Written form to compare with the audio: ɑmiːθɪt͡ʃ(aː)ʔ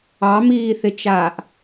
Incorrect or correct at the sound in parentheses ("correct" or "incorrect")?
correct